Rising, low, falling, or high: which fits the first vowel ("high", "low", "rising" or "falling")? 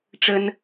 high